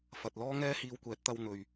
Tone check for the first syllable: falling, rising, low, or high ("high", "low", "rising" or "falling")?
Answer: low